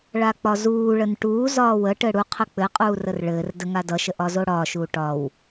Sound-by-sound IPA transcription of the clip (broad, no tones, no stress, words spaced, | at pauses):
ɭak͡pɒzuːɭən ʈuːzɒː wə ʈɘɽuqʰə k͡pɘqʼuː rərɭɘːrdə ŋadʌʃə ʔɒzoɽɒːʃuː ʈɒw